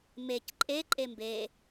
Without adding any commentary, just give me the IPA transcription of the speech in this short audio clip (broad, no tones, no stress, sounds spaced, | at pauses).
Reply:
m e c ǃʼ e ǃʼ e m b e